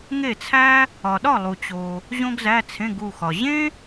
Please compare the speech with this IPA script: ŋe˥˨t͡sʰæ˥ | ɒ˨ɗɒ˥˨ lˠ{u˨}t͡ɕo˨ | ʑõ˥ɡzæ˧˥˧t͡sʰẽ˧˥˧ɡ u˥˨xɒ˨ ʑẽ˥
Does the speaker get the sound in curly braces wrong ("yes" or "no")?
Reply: no